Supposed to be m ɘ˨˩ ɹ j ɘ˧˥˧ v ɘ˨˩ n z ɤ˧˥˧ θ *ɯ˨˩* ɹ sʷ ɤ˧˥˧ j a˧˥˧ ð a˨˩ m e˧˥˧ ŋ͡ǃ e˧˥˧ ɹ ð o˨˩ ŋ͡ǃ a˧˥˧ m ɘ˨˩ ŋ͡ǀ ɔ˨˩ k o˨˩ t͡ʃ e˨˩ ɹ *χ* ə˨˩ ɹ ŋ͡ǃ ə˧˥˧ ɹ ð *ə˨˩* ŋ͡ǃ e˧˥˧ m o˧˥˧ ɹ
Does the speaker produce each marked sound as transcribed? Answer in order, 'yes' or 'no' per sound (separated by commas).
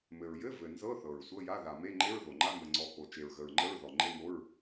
no, no, no